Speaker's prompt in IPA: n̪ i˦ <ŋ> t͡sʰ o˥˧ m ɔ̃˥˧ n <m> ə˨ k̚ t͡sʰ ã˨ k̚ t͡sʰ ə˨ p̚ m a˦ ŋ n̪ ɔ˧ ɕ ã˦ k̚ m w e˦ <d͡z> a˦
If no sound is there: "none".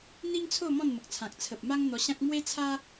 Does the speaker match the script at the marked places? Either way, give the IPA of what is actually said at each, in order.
ŋ, m, t͡sʰ

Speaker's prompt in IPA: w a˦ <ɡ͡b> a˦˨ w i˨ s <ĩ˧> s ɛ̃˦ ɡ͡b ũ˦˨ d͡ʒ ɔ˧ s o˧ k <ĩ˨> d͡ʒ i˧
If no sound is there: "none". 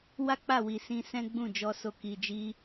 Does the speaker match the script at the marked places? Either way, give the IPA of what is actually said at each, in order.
k͡p, ĩ˧, i˨

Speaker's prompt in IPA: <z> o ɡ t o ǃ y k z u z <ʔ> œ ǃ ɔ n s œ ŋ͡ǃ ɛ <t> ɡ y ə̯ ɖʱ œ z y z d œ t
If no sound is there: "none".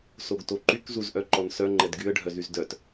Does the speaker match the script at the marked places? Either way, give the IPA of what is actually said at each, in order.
s, ʔ, d

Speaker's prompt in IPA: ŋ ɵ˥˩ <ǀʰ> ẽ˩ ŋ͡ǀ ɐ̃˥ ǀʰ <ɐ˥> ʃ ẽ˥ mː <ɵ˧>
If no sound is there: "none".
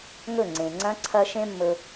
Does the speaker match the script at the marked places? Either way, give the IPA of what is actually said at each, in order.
ŋ͡ǀ, ɐ˥, ɵ˧

